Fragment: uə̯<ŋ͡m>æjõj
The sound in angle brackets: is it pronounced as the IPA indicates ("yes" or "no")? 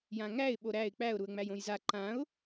yes